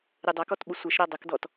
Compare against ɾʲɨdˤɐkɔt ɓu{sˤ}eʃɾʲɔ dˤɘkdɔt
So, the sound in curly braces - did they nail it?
no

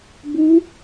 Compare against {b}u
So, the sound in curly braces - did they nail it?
yes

